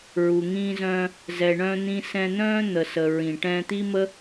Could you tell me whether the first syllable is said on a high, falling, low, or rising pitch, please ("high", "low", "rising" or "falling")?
low